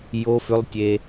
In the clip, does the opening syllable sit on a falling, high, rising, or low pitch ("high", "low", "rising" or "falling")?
high